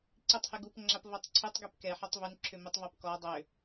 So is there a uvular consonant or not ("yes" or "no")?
no